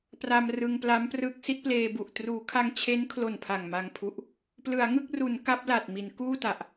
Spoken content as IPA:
p r a˧ m r ɯ˧ ŋ p l a˦˥ m p r ɯ˦˥ k̚ s i˦˥ t̚ p l eː˧ b u˨˩ ʔ t r uː˩˦ kʰ a˧ ŋ t͡ɕʰ e˦˥ n kʰ l o˨˩ n pʰ a˨˩ ŋ m a˧ ŋ pʰ u˦˥ ʔ | p l ɯ˩˦ a̯ ŋ ɯ˥˩ k̚ r u˩˦ n k a˦˥ p̚ l a˨˩ t̚ m i˩˦ n k uː˥˩ t a˨˩ ʔ

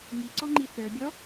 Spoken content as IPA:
ŋ i ǀ ɔ ŋ͡ǃ i θ ə˞ bʲ ɔ

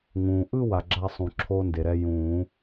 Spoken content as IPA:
ŋ ũː˩ ʔ ɯ˥˧ w a˩ ɡ͡ǁ a˥˧ sˤ ũ˩ ǁʰ oː˧ n d e˩ ɾ ɛ˧ j ũː˨˩˦

